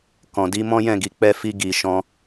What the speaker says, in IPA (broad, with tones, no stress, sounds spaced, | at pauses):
k ɔ̃˨ d i˧ m ɔ̃˦ j ɛ̃˦˨ ɡ i˨ k͡p ɛ˧ f i˧ ɡ i˨ ʃ ɔ̃˧